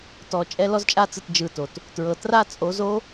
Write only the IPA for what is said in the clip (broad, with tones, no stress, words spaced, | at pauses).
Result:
tɔ˧˥t͡ʃʼɛ˥ lɔ˥zt͡ʃʼa˥t͡sɯ˧t d͡ʒɯ˧to˩t | tɹɤ˧ tra˥ t͡sʼo˧˥zo˥